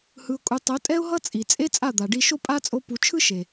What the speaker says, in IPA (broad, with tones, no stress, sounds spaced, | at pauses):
h ɯ˧ ʊ̯ kʼ u˧ tˤ o˨˦ tʼ ɛ˦ ʊ̯ ɦ ʌ˦ t͡sʼ i˨ t͡sʼ e˦ t͡sʼ a˦˨ d̪ a˨ ɖ i˧ ʃ o˦ pʼ a˦ t͡sʼ o˧ p u˨ t͡ʃʰ ɯ˦ ʃ e˨